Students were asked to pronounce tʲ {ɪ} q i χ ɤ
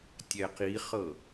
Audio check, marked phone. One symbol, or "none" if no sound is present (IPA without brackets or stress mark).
ɛ